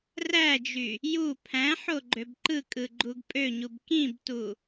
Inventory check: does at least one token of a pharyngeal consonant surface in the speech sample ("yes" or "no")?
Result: yes